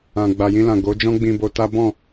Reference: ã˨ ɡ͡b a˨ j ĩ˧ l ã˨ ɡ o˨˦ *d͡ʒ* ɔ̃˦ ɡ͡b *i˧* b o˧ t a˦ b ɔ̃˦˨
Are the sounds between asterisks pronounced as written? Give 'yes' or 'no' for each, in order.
yes, no

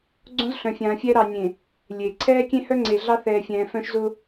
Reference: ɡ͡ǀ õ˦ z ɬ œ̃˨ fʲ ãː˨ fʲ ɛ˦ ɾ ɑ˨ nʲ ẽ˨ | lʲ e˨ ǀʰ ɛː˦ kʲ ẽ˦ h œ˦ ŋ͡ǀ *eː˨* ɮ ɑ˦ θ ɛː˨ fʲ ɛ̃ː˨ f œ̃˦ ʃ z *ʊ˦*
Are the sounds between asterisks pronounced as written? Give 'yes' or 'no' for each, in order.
no, yes

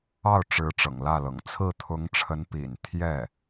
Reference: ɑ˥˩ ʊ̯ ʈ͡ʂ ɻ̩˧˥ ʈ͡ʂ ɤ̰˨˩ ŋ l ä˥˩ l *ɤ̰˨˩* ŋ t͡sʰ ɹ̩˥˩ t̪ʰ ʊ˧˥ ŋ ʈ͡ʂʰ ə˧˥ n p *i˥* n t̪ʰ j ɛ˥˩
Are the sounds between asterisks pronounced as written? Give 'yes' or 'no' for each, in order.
yes, no

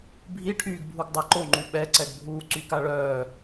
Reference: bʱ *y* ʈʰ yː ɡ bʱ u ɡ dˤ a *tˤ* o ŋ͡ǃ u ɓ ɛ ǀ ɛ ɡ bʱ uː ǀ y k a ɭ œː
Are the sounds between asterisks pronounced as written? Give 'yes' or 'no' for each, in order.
no, no

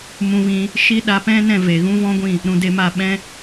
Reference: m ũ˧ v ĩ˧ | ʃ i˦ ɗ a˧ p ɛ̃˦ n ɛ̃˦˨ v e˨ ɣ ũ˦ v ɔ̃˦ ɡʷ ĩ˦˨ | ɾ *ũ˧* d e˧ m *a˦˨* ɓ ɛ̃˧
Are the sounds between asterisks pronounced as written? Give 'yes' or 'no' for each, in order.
no, yes

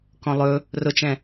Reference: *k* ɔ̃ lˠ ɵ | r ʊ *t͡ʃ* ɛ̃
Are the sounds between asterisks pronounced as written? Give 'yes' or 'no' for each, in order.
yes, yes

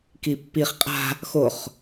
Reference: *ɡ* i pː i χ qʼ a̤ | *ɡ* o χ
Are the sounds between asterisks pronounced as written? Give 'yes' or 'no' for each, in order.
no, no

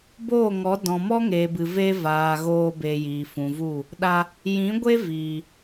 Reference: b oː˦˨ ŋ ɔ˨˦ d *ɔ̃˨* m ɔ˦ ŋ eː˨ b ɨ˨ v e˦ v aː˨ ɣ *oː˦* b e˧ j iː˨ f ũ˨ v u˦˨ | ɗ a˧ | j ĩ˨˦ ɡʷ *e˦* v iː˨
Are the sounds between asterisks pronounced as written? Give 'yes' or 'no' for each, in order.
yes, no, yes

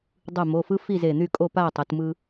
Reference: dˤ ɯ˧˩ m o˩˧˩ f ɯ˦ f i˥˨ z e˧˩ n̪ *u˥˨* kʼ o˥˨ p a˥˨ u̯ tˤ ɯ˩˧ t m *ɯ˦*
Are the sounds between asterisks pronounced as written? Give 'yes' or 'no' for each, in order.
no, yes

